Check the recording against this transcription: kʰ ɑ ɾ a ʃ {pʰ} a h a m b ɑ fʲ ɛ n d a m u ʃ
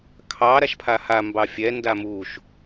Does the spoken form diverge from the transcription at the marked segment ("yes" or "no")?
no